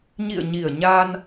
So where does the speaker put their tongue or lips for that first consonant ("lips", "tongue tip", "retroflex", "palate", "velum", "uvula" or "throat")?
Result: palate